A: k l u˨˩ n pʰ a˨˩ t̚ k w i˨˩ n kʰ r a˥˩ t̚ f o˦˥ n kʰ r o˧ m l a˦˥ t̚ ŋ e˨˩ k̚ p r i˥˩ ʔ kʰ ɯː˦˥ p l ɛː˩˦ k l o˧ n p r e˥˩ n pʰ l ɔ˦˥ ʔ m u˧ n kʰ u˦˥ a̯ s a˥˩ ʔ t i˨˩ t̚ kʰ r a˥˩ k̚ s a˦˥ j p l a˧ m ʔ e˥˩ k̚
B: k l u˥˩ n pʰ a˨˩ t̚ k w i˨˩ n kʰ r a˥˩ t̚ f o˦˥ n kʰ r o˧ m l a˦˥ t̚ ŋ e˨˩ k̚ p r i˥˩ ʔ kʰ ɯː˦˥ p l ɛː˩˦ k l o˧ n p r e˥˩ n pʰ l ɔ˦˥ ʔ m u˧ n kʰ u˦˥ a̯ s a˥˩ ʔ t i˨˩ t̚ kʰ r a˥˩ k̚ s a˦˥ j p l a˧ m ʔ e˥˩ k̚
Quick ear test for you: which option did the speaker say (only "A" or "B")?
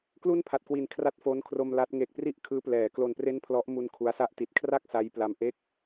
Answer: B